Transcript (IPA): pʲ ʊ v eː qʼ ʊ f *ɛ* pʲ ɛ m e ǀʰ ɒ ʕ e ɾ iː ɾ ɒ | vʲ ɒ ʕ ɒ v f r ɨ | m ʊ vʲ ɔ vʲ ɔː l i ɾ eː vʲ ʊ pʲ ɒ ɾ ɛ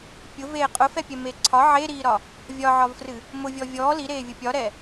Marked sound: correct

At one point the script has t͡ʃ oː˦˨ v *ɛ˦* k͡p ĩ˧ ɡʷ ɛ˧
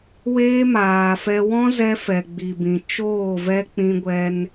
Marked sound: correct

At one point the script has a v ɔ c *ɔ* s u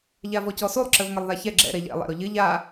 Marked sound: correct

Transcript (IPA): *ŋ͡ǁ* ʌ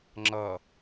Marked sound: correct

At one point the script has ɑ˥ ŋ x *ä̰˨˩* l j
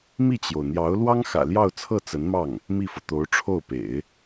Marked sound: correct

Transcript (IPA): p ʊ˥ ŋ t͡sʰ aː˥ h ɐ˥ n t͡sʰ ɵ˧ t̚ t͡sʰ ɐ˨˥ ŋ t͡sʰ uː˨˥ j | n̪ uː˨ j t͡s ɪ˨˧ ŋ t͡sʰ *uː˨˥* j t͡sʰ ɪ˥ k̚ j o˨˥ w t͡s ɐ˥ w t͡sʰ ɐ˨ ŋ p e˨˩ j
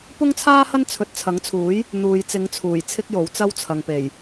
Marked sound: incorrect: uː˨˩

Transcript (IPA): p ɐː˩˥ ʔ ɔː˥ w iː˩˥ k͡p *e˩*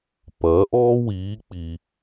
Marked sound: incorrect: i˩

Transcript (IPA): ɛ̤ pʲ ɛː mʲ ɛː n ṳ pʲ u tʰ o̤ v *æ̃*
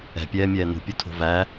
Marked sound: incorrect: æ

